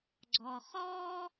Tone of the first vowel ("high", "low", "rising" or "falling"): low